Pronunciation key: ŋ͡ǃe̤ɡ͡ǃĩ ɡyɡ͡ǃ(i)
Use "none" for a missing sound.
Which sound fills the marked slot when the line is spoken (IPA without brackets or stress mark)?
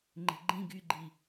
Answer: i